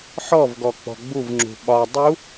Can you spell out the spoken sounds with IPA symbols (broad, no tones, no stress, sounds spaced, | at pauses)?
ħ ɔ v ɡ ɔ k͡p ɔ̤ ɡ͡b u v ŋ͡ǁ ṳ ɓ ɒ dˤ u